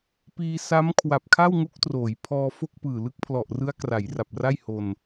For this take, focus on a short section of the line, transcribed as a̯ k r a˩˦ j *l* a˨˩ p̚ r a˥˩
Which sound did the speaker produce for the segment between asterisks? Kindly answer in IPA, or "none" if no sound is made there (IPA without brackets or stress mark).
r